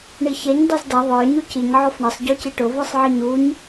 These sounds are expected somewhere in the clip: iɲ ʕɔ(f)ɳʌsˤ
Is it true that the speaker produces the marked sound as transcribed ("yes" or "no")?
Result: yes